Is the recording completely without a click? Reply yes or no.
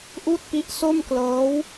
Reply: yes